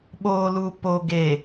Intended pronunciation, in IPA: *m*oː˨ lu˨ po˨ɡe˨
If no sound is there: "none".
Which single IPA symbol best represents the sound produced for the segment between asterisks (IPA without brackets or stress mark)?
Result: ɓ